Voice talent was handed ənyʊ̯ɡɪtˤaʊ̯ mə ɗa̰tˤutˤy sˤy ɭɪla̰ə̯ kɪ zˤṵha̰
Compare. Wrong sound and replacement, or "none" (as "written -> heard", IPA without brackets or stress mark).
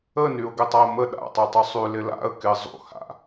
ɭ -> l